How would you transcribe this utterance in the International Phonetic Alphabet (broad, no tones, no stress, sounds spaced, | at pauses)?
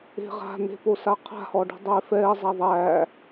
e̤ ʁ a̤ n̪ e̤ p o s a qʰ a̤ h ɔ ɖ e̤ dˤ eː f ɛː zˤ a ðˤ æː